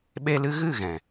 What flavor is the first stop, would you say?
implosive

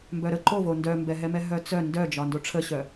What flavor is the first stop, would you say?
plain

